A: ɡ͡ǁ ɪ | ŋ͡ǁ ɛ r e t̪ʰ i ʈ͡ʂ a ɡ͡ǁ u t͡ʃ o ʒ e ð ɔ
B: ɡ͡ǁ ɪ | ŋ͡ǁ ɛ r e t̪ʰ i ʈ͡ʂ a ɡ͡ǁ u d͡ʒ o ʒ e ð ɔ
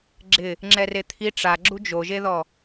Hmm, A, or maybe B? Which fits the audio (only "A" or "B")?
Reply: B